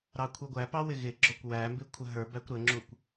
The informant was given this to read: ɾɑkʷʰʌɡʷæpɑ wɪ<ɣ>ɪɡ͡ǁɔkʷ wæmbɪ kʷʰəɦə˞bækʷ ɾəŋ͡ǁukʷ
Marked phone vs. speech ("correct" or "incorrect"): correct